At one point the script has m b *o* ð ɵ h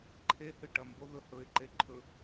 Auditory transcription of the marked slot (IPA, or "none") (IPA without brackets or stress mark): o